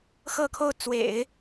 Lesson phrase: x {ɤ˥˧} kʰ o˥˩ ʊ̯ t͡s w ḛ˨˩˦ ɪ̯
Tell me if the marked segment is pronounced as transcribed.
yes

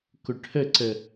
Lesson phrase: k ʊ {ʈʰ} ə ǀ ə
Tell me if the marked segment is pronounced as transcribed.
yes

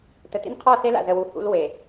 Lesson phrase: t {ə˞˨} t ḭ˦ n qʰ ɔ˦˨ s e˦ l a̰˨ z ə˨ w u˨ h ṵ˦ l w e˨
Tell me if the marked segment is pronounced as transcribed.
no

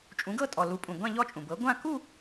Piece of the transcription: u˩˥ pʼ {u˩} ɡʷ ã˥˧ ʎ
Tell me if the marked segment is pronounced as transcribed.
no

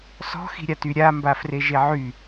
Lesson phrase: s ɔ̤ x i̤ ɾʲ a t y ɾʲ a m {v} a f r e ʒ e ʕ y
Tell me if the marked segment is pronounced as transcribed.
no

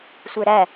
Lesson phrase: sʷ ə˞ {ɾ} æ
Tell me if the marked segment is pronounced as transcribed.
yes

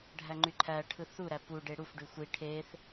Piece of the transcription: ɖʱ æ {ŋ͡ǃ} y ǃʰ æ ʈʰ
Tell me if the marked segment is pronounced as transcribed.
yes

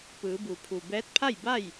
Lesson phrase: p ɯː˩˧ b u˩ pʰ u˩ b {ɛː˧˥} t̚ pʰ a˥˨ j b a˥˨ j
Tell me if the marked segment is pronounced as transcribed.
yes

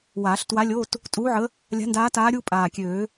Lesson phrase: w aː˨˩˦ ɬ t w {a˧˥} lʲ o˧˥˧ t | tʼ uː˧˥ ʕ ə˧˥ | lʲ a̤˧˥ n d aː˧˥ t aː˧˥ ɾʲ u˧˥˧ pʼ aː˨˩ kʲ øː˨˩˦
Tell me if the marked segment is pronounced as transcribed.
yes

